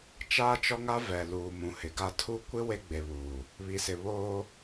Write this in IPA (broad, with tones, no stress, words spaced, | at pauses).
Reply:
t͡ʃaː˦t͡ʃɔ˦ŋa˦ vɛ˨ luː˨mũ˨hɪ˨ɡa˦ tʰu˦ kʷɪ˦ we˦ɡ͡be˨βuː˨ | βi˨sɪ˨ βoː˦